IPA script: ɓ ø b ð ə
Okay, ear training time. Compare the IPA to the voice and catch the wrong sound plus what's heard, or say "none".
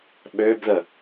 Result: none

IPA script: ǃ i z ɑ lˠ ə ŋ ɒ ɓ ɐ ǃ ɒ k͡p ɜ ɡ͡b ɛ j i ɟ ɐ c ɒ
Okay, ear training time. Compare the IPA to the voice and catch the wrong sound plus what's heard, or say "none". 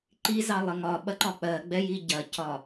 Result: none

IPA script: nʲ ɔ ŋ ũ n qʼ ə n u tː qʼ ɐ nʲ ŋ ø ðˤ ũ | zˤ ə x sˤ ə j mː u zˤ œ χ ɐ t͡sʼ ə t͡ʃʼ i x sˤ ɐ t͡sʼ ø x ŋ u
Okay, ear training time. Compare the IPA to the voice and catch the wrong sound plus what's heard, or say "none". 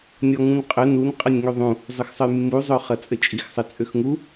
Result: tː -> n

